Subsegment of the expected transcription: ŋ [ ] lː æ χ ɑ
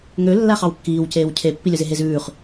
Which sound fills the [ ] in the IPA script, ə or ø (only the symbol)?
ø